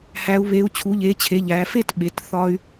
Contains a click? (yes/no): no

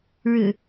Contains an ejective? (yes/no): no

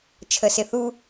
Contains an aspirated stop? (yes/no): yes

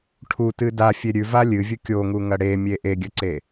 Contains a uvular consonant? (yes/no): no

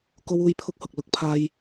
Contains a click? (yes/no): no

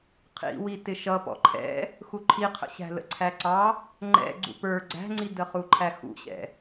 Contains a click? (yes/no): yes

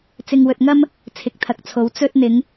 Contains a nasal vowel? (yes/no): no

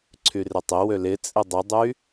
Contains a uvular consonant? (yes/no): no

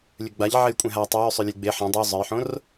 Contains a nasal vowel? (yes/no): yes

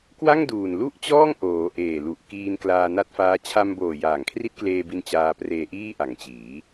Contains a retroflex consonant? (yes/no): no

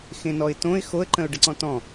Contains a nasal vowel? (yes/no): yes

